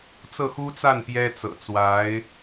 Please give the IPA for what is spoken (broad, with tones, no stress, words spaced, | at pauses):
t͡sɤ˥˩xu˥t͡sa˥˩n pjɛ˥t͡sɤ̰˨˩t͡swa˧˥ɪ̯